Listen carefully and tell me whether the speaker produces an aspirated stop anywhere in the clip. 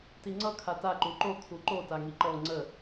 yes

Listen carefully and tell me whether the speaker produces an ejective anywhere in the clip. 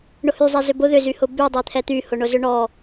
no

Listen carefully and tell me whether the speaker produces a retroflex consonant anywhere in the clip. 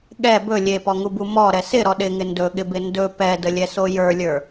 no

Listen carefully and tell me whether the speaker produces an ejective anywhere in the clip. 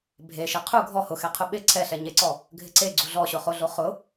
no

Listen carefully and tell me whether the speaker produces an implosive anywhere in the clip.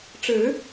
no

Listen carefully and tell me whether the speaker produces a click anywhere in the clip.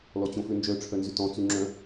yes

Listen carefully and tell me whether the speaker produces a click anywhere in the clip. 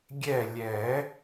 no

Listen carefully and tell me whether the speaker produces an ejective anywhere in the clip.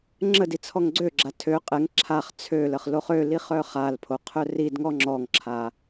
yes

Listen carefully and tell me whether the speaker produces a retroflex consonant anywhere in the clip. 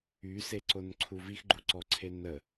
no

